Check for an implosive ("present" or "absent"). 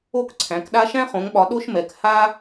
present